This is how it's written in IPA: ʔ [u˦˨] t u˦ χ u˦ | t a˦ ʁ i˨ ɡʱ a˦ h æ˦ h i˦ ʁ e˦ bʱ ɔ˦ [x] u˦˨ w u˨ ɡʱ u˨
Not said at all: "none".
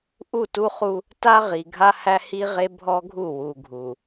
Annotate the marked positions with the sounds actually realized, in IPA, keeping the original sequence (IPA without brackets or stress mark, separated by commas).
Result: u˦˨, ɡʱ